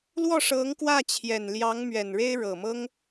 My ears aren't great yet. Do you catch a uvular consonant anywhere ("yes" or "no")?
no